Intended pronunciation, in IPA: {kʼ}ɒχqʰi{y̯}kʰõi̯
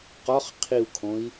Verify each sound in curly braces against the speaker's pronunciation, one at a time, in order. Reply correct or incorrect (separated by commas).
incorrect, incorrect